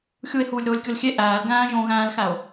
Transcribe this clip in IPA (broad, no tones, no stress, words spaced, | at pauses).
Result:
xʲue̯huːlʲ ɾoːlʲkʲolxʲe ʔæːl ɡæ̃ːʒõ ɣæ̃ːlxæo̯